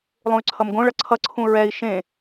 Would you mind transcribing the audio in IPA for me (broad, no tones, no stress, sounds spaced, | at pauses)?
lˠ ũ y̯ ǀʰ ʌ m ɡ õ ɭ ʌ ǀʰ ʌ ǀʰ ũ ɹ ɛ i̯ ʃ ẽ